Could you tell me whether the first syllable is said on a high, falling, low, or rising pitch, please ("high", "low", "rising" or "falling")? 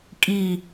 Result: falling